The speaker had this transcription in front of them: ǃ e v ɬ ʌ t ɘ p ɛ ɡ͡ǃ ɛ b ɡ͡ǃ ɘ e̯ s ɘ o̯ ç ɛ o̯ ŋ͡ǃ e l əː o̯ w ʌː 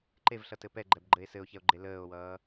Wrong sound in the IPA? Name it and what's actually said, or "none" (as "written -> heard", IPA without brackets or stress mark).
ŋ͡ǃ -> ɡ͡ǃ